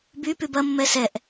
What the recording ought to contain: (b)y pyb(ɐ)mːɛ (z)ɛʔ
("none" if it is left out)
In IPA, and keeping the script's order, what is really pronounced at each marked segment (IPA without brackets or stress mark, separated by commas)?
b, ɐ, s